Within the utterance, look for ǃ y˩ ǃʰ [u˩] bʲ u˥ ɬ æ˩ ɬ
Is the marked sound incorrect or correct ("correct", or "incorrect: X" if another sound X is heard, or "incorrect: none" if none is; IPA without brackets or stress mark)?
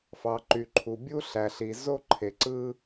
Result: correct